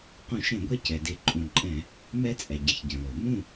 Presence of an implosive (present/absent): absent